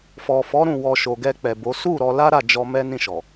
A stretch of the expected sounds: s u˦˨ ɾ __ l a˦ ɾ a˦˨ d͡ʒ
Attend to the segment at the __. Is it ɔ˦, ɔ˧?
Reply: ɔ˧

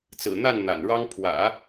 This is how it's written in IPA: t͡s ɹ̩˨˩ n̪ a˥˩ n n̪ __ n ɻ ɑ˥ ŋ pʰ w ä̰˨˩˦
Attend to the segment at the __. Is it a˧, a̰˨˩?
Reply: a̰˨˩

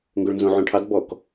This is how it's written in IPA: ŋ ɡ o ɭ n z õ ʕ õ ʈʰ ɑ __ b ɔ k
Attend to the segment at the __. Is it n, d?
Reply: d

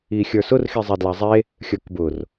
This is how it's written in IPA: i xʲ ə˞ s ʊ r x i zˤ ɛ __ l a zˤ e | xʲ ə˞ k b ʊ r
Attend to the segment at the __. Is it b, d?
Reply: d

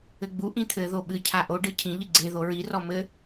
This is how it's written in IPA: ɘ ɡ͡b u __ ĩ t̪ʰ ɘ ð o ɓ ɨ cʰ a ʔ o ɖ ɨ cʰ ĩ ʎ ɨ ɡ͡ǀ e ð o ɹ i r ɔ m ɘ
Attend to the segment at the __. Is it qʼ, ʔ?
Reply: ʔ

